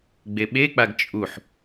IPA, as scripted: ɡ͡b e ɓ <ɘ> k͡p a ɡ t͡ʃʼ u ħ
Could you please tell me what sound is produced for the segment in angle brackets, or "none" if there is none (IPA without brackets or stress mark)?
e